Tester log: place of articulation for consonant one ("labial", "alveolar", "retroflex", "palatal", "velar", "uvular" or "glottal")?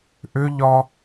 glottal